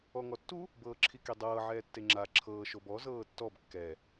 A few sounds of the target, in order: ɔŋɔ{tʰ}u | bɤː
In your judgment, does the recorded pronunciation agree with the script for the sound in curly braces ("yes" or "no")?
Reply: no